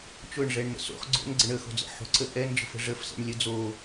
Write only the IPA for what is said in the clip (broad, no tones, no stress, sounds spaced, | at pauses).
t͡ʃ ʊ ɳ ʐ ɛ ɳ n ə̰ s o̰ χ ɡ͡ǀ o̰ n ɡ͡ǀ ə ɳ ə x o̤ d͡z ə̰ ħ o̤ ǀ ə ʔ ɛ n d͡ʒ ə̤ f ə̤ ʐ ə f s ɛ̰ ɳ lʲ ə d͡z o